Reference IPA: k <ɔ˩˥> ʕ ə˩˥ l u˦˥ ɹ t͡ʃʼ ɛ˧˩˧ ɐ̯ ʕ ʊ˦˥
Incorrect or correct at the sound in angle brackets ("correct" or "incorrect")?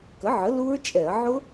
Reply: incorrect